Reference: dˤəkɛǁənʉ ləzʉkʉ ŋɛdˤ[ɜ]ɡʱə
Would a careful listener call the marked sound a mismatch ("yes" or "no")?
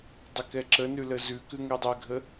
yes